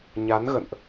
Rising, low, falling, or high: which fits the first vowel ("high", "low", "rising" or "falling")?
rising